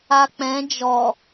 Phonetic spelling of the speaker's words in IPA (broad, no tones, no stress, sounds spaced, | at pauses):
a k͡p ɛ̃ d͡ʒ ɔ